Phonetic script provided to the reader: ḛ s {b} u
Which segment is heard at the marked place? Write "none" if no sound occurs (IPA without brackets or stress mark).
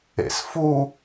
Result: f